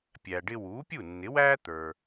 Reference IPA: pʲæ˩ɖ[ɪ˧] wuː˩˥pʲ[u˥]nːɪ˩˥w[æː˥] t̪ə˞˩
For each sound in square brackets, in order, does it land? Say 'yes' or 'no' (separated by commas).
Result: yes, no, yes